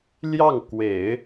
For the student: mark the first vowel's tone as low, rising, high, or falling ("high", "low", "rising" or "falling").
falling